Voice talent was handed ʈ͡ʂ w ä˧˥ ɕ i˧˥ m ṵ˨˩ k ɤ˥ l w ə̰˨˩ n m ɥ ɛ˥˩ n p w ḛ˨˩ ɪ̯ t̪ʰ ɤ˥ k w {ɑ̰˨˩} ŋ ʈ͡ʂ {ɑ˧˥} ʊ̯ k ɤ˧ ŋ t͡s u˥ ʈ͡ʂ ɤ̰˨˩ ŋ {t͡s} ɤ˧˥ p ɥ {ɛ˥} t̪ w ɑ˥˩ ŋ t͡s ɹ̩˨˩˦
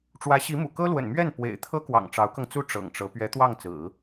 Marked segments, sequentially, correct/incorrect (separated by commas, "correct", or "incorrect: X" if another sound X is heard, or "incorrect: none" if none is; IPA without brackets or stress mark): correct, correct, incorrect: ʈ͡ʂ, incorrect: ɛ˧˥